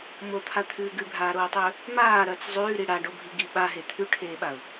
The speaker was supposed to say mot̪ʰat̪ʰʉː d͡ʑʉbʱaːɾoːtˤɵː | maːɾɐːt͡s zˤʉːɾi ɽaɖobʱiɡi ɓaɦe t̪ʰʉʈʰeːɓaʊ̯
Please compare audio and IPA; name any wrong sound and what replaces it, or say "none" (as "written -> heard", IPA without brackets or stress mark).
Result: d͡ʑ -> ɡ